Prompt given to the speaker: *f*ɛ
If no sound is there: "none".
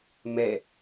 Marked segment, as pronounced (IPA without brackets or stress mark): m